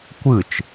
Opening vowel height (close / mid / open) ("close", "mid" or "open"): close